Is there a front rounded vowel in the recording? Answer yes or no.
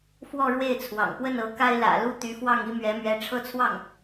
yes